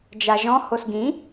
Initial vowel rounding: unrounded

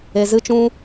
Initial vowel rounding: unrounded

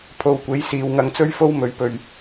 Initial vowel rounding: rounded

